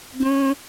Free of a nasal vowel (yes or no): no